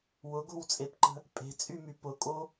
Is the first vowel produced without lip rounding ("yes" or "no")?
no